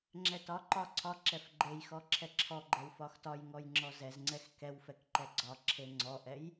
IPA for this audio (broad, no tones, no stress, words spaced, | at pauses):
ŋ͡ǁɛtɒ ǃɒ ǀʰɒ ǁɛfɡ͡ǃej xɔǁʰɛǁʰɔɡ͡ǃɛw fɒxtɒjŋɔj ŋ͡ǁɔzɛzŋ͡ǀɛx kɛwfɛk ǃɛɡ͡ǀɒ ǁʰeŋ͡ǀɔʔɛj